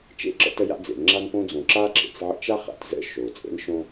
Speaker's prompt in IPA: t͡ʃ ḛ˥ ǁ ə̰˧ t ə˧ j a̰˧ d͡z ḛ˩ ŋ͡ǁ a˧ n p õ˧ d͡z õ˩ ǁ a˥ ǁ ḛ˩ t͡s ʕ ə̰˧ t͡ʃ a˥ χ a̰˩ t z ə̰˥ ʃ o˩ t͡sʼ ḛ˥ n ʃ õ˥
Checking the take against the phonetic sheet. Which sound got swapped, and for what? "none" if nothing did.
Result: none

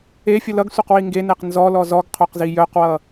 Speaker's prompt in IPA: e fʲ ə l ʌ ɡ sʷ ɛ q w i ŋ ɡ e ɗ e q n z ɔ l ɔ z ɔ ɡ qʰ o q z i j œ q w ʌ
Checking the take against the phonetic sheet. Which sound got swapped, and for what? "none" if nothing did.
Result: ɗ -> n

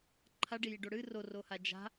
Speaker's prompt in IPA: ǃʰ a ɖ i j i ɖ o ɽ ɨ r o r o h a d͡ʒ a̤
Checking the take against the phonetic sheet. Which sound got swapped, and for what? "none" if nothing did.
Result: none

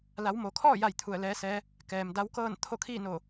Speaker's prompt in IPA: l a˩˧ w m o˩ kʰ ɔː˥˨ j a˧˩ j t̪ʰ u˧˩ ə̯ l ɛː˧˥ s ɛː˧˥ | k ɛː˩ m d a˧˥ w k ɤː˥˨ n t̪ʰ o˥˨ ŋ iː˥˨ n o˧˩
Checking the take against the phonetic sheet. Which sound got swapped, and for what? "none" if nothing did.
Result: ŋ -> kʰ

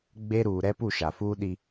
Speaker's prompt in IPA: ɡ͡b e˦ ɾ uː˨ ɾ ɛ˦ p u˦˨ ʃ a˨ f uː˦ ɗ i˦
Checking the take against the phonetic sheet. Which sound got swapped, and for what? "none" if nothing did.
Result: none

